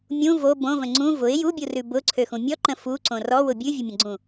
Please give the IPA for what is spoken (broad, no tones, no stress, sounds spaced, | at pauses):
mʲ ũ v o b õ v ə̃ ŋ͡ǀ ũ v ʊ ɪ̯ j u bʲ u r ʉ b ʊ ǀʰ ø x ũ mʲ ɔ ǃ ə̃ f u ǀ õ r ɔ w ʊ bʲ ʉ vʲ ʊ mʲ ə̃ ɡ͡ǀ ũ